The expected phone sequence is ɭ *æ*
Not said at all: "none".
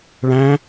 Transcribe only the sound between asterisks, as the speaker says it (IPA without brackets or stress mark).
æ̃